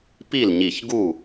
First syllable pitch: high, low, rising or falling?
falling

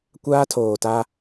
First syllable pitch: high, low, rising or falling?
high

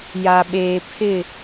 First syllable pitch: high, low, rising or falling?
low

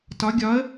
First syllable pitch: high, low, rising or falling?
rising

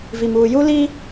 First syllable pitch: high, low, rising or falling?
low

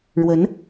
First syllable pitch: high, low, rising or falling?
rising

